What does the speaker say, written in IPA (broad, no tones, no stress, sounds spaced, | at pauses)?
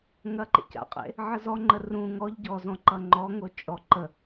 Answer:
ŋ ɐ ǃ ḛ c a̰ qʼ ḛ | ʕ ə z ɔ ŋ͡ǃ ə r ũ ŋ ɔ ʎ ɟ ɔ z ɔ̃ ǃ ʌ ŋ͡ǃ ɔ ŋ o t͡ʃʼ ɔ ǃ ə